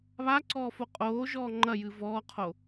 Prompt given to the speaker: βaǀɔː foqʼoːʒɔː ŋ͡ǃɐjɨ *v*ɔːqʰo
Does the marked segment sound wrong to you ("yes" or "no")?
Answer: no